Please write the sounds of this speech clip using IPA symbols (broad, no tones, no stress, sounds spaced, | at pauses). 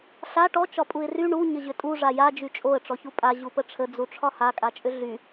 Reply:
ɬ a ʈ ɔ t͡ʃ ɒ pʼ u ɪ̯ r y ɳ u ɲ ə ʑ ʏ tʼ u ʐ a j a d͡ʒ y t͡ʃʼ o ə̯ ʈ͡ʂ ɔ ç u pʼ a ʑ u p ə ʈ͡ʂʰ ə d͡z u ʈ͡ʂʰ ɒ h a kʼ a t͡ʃʼ ʏ ɮ y